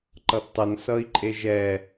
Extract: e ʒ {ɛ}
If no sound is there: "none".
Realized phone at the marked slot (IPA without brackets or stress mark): ɛ